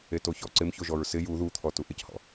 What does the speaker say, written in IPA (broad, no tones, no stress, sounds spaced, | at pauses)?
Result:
e t o ç ɔ ǀ ɪ m ç o ʒ ɔ ɹ s ɪ j u ð u t̪ʰ ɔ t u ʔ ɪ c h ɔ̰